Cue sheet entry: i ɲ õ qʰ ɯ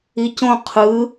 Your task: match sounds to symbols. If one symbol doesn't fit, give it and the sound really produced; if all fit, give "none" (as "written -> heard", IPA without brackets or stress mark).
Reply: ɲ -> c